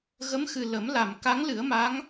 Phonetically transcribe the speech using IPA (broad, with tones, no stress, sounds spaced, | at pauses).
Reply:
ɣ ə˧˥ m x ɨ˨˩ l ə˨˩˦ m l a˨˩˨ m k a˧˥ ŋ l ɨ˨˩˦ ə̯ m a˧˥ ŋ